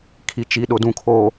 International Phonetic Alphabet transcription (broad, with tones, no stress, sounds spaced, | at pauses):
kʰ i˨ t͡ʃ i˨ ɗ ʊ˨ d ũ˨ kʰ o˨